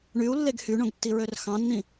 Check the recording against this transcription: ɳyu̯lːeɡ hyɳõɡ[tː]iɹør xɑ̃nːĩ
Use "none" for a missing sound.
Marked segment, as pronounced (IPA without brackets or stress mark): tː